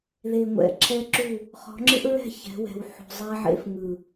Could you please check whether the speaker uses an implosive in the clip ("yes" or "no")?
no